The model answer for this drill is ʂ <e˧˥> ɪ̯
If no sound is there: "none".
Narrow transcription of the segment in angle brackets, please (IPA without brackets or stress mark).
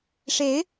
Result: e˧˥